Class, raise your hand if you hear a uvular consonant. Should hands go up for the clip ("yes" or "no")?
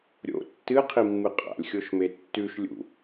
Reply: yes